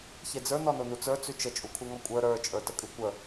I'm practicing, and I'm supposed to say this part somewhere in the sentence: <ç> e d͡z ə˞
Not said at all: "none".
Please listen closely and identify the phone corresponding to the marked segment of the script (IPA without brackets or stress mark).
ç